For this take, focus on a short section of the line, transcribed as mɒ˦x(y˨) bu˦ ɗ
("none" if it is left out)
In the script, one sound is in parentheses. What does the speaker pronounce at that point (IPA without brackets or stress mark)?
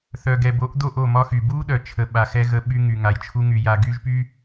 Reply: y˨